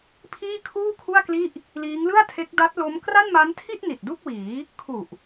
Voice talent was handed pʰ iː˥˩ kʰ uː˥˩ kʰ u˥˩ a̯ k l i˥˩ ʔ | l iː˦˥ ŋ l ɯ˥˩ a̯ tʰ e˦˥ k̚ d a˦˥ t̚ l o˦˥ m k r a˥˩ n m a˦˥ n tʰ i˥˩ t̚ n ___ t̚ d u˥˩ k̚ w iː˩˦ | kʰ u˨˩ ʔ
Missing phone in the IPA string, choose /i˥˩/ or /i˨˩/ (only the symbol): i˨˩